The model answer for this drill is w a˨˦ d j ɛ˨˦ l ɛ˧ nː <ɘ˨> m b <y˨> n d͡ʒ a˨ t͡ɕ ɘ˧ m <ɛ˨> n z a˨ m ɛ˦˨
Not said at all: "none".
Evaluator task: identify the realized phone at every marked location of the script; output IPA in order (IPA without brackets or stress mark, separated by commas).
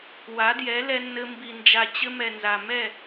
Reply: ɘ˧, i˨, ɛ˨